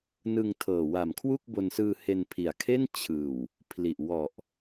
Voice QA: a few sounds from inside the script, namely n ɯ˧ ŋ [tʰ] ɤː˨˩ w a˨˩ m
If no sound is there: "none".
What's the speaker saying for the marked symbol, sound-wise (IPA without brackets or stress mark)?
tʰ